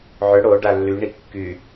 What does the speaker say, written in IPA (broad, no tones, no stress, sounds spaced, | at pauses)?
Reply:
ʕ ʏ ɽ o ɖ a lː y ɳ i kː y